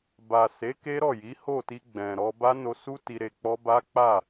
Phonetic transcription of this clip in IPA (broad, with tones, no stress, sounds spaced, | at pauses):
b a˨ s e˨˦ k e˦ ɾ ɔ˦˨ j i˨˦ h o˦˨ t i˧ ɡ͡b ɛ̃˨ ɾ ɔ˧ b a˦ n o˧ s u˦ t i˧ ɾ e˧ k͡p ɔ˦ b a˦ k͡p a˦˨